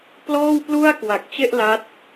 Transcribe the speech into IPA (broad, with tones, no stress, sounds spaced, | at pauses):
p l ɔː˥˩ w p l u˥˩ a̯ k w a˨˩ k̚ t͡ɕ e˥˩ ʔ l a˦˥ t̚